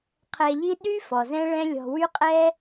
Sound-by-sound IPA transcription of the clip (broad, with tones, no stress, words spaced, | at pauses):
qʰɛ˧ʎi˥ ɗy˥ fɔ˩zɛ̃˥ɭɛ̃˥ lʲɔ̤˧wy˥ qʼɛ˥